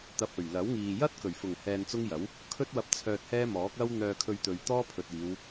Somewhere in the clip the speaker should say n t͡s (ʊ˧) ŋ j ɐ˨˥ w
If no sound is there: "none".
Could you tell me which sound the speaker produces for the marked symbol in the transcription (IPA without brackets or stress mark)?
ʊ˥